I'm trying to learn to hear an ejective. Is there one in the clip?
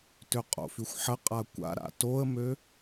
yes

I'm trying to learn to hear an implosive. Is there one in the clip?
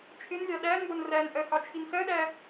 yes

